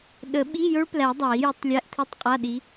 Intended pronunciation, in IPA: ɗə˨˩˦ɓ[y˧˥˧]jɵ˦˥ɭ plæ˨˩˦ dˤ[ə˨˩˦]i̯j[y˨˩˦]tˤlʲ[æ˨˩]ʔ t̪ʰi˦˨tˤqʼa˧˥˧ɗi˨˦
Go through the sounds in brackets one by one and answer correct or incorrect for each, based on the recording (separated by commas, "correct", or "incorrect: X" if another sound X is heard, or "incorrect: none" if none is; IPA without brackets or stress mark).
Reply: incorrect: i˧˥˧, incorrect: a˨˩˦, correct, incorrect: æ˧˥˧